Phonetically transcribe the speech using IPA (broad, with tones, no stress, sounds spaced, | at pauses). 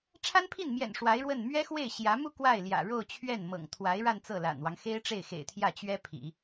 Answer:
ʈ͡ʂʰ a˥ n pʰ i˥˩ n m j ɛ̰˨˩ n ʂ w a˧˥ ɪ̯ ɻ w ə˥˩ n m ɥ ɛ˥ x w e˥˩ ɪ̯ ɕ j ä˧˥ m u˥˧ k w a˥˩ ɪ̯ l j ä̰˨˩ ɻ o˥˧ ʊ̯ t͡ɕʰ ɥ ɛ˥˩ n m ɤ̰˨˩ ŋ t̪ʰ w a˧˥ ɪ̯ ɻ a˥˧ n t͡s ɤ˥˩ l a̰˨˩ n w ɑ˦ ŋ x e˥ ɪ̯ ʈ͡ʂ e˥˩ ɪ̯ x ḛ˨˩ ɪ̯ t̪ʰ j ä˥˩ t͡ɕ ɥ ɛ˥ pʰ ḭ˨˩˦